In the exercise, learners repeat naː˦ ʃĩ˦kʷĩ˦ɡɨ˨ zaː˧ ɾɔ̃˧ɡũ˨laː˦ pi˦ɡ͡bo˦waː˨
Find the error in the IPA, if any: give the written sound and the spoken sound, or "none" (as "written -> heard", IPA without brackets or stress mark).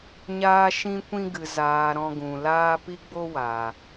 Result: n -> ɲ